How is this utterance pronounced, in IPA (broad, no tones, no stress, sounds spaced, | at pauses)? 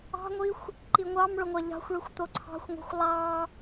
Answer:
ɑ̤ ŋʷ i xʷ | ǃ i ŋʷ ɑ m ɭ ʊ ŋʷ a ʎ ɑ̤ xʷ ɭ i xʷ t̪ o ǀʰ ɑ̤ xʷ ŋʷ e̤ xʷ lˠ ɑ